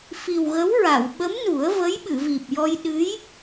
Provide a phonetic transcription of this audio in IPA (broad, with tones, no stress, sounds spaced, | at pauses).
f i˨˩ w ɣ ə˧˥ w ɹ a˨˩˨ w ɓ ə˧˥ m n u˨˩˦ ə̯ v ə˧˥ j ɓ ɨ˨˩˨ v i˨˩ p̚ j ɔ˧ j ɗ ɨ˧˥ j